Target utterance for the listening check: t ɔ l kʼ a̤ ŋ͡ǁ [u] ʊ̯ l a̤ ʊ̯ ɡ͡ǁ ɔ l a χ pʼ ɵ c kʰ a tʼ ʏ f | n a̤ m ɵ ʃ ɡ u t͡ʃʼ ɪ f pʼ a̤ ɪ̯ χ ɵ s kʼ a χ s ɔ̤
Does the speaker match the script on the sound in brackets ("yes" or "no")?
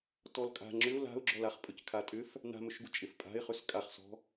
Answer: no